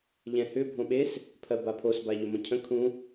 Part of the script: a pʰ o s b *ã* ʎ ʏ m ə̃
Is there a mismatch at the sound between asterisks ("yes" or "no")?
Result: yes